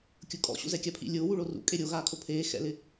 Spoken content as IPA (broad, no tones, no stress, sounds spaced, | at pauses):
kʲ ʊ kʼ ɔ̰ ɕ ṵ z ɛ kʲ a pʰ ḭ lʲ ʊː w u ɭ o r ṵ kʼ e ɾʲ o ɣ aː kʰ o pʰ eː x ɛ̰ l ɪ